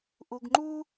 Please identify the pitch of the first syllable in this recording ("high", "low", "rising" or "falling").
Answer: low